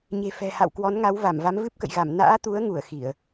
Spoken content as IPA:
ɲ e̤˨˩ f ɛ̤˨˩ h a̰˧˨ w k w ɔ˨˦ n ŋ a˨˦ w v a˧˩ m v a˨˦ m v ɨ˦˥ p̚ k ə̰˧˨ j ɣ a˧˩ m n a̰ː˧˥ t̪ u˨˦ ə̯ ŋ u˧˩ ə̯ x i˧˩˨ ə̯

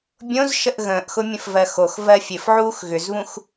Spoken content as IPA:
bʲ õ z ʃ ə ʔ ɣ ə̃ː ʔ x ʊ mʲ ə̃ f v ɜ x o x v ɜ fʲ ɘ f ʕ uː x ɣ ʏ z β ũ x

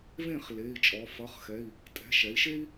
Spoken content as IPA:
v ẽ˥˨ χ l e˩˧˩ i̯ t͡ʃʼ ɔ˩˧ f ʌ˩˧˩ χ x ɛ˩˧˩ i̯ | tʼ ɛ̤˩˧˩ ʃ ɛ˩˧ i̯ ʃ e˥ i̯

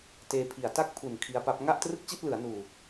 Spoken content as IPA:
t eː˧ pʰ i˨˩ a̯ t a˦˥ k̚ pʰ u˨˩ n kʰ i˦˥ a̯ p a˦˥ p̚ ŋ a˥˩ ʔ t r ɯ˥˩ k̚ t͡ɕ i˥˩ t̚ l ɯ˩˦ a̯ n uː˨˩

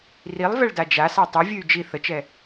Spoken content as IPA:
r i lˠ v ɛ ɭ d a d͡ʒ a s a tˤ ɨ vʲ ɨ y̯ d͡ʒ i θ ə t͡ʃ ɛ

